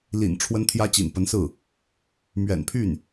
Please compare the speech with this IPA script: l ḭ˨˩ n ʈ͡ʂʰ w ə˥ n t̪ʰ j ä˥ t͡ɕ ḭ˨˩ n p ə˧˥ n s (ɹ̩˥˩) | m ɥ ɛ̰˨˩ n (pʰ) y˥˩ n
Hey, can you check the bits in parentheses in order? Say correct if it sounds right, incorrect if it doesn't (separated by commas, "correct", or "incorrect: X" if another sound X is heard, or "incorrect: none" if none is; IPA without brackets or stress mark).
correct, correct